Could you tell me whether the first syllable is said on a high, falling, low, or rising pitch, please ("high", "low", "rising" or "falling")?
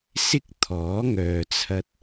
high